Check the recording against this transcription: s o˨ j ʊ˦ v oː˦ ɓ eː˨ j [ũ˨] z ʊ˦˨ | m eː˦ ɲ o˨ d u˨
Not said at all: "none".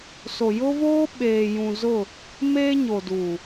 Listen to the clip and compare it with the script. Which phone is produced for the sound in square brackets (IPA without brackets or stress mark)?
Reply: ũ˨